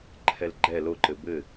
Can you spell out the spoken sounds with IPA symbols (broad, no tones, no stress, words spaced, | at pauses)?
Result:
ǃʰɛlɡ͡ǃɛ loǃɘ bɘ